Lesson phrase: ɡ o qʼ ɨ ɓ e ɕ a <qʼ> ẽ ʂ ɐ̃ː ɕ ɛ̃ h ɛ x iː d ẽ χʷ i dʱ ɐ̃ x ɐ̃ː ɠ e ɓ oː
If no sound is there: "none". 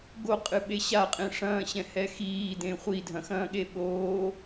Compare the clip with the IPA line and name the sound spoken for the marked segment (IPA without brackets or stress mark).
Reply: qʼ